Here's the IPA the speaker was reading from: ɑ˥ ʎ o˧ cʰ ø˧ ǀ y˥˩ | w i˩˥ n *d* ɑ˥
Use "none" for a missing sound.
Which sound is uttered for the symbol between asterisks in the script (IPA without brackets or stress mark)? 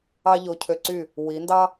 d